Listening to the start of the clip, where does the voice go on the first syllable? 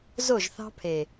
falling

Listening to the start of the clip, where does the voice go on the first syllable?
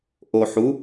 low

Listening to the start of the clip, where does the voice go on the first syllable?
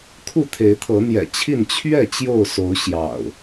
falling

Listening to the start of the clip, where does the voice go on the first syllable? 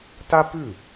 high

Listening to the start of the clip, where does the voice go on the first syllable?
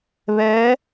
rising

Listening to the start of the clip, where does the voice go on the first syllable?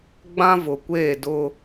high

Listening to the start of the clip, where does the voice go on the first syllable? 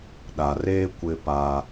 low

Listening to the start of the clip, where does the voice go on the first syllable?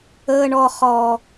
high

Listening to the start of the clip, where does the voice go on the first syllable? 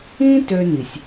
high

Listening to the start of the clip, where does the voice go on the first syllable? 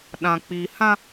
low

